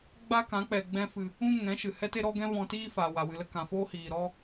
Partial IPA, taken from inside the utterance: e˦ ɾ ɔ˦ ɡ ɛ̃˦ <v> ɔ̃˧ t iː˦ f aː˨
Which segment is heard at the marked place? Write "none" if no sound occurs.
v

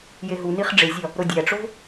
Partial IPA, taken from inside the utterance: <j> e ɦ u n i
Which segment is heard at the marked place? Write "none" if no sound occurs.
j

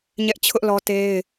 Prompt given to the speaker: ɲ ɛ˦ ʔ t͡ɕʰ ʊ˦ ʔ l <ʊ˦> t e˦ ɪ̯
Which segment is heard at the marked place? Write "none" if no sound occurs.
ɔ˦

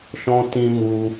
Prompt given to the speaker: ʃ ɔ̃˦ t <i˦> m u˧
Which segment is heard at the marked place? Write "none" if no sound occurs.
ĩ˦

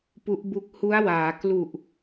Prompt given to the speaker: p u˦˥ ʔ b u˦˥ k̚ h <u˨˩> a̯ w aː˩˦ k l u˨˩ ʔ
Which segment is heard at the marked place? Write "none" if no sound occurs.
u˦˥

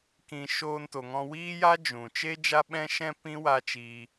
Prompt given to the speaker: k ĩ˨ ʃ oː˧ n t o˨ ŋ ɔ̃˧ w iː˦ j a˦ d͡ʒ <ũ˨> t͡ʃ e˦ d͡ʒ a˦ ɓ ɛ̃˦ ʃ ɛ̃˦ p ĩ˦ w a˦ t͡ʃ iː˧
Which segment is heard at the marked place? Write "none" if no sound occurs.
ũ˨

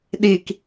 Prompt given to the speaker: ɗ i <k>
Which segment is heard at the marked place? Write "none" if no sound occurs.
k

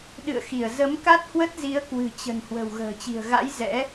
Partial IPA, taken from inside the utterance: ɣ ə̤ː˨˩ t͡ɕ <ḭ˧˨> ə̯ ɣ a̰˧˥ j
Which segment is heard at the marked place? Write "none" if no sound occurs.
i̤˨˩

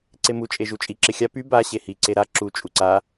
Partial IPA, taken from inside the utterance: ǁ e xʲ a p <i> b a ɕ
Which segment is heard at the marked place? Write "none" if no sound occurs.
y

